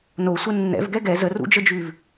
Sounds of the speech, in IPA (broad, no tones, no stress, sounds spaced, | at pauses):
n o sʷ ə nː ɛ̰ v ɡ ɛ ɡ ɛ z ə r ṵ d͡ʒ ə d͡ʒ ʉ v